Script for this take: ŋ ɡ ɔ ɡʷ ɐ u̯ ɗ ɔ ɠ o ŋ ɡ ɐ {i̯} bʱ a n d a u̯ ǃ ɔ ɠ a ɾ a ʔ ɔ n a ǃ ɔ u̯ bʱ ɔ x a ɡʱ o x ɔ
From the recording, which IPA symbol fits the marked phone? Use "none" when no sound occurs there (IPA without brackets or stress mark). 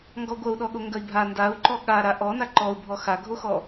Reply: i̯